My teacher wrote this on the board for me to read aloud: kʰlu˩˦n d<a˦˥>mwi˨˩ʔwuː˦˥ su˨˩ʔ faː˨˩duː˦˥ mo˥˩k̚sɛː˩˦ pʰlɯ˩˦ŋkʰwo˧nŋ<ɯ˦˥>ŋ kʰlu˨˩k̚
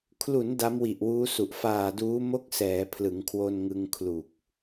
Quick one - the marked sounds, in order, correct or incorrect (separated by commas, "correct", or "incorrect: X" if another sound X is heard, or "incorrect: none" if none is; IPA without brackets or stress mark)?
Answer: correct, incorrect: ɯ˧